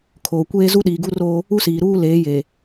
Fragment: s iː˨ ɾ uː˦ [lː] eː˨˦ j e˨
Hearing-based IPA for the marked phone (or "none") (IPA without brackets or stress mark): l